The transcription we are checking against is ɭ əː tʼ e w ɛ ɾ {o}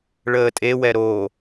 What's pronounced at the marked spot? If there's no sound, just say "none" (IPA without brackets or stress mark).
o